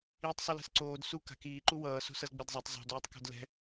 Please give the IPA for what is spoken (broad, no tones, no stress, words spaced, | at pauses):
iːtˤsˤulɛ̤sǀoːd su ka̤kiː ǃuwʌː so̤sʌzɡ͡bedzˤatˤ zˤo̤d oːtˤko̤dlɛ̤